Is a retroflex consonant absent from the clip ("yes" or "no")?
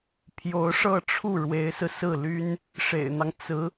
no